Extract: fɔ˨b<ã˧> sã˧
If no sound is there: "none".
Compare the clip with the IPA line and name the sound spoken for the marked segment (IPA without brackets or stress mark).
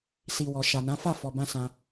ã˧